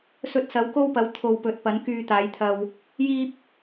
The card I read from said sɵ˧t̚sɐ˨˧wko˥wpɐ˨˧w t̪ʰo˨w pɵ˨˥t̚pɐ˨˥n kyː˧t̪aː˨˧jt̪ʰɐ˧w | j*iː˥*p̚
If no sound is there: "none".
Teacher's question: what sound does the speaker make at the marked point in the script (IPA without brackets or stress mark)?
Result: iː˥